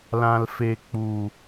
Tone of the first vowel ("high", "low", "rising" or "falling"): low